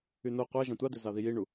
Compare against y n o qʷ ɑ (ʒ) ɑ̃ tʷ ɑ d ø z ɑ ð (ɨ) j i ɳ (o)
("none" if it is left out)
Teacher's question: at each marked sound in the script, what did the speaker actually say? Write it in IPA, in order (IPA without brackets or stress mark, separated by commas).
ʒ, i, u